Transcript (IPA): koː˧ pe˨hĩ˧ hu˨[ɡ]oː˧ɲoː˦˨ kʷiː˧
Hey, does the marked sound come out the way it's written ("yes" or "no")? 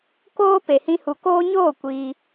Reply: no